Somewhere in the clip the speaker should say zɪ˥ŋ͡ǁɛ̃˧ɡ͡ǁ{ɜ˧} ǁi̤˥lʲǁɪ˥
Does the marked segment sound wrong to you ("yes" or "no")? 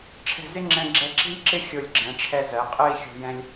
yes